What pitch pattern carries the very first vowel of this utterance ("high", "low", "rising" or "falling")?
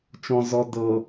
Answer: low